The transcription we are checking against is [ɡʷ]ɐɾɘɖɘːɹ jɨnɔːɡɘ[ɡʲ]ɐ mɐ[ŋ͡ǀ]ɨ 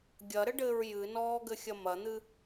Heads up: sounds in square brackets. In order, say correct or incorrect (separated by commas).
incorrect, incorrect, incorrect